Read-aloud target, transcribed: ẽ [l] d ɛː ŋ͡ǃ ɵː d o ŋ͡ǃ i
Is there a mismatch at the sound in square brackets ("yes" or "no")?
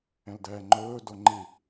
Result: no